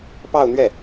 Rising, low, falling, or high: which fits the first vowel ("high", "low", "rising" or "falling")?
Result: falling